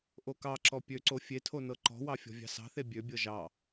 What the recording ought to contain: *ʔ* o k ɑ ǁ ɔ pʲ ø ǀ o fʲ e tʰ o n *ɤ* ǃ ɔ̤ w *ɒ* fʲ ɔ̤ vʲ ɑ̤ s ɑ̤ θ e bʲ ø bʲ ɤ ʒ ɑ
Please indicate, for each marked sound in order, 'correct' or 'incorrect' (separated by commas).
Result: correct, correct, incorrect